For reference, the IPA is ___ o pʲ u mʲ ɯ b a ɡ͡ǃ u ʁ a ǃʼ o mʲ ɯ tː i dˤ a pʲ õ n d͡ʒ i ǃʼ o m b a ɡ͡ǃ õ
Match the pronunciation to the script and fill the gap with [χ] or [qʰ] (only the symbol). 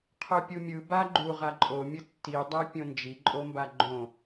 qʰ